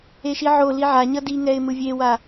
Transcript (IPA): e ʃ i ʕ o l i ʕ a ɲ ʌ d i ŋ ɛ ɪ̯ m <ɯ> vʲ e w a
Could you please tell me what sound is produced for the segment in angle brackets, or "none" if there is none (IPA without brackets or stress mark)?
ɯ